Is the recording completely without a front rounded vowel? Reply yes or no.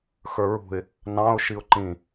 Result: yes